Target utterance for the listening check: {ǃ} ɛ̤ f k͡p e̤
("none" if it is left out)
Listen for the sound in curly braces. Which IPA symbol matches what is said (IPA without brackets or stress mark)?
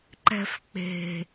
ǃ